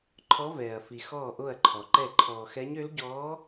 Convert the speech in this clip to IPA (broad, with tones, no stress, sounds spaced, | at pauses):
ǃʰ ɔ˧˥ v ɛː˨ ɐ̯ f i˨ x ɔː˥˨ ʔ o˥˨ ɐ̯ ǃʰ ɔ˨ ǃ ɛ˥˨ ǃʰ ɔː˨ x ɛ˧˥ ɲ ø˧˥ l ɟ ɔː˧˥